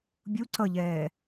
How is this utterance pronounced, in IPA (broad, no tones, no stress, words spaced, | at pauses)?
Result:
bʲu ǀʌʎɛː